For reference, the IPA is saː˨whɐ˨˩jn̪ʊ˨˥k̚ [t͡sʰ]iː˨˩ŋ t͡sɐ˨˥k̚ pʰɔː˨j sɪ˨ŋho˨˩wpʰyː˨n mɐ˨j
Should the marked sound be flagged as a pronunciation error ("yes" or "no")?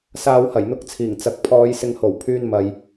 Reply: no